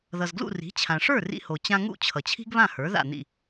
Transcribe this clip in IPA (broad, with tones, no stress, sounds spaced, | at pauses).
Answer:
ð ʌ˩ z ɡ l ṵ˥˩ r i̤˩˥ t͡ɕʰ ã˩ ʂ ə˞˥˩ r ḭ˧ h o˩ t͡ɕ ã˧ ŋ ṵ˥˩ t͡ɕʰ ʌ˩ t͡ɕʰ i̤˥ ɡ β ã˥˩ h ə˞˩˥ ð a̰˥˩ n̪ ḭ˥˩